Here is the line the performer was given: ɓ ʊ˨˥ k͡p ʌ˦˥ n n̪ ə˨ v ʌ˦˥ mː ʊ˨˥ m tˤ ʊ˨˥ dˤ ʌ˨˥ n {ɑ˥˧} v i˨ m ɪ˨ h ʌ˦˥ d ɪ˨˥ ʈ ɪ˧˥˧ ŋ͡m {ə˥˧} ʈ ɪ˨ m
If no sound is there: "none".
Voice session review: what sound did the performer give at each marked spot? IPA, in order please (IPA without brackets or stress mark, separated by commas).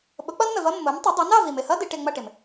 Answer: ɑ˥˧, ʌ˥˧